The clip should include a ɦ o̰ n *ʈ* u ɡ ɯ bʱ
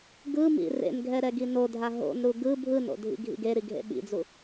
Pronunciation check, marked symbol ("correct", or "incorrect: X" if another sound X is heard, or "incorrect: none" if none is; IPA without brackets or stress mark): incorrect: ɾ